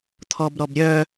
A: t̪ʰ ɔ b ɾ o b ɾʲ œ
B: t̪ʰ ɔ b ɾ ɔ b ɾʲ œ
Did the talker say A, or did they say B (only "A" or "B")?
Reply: B